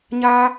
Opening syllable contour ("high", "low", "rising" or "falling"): high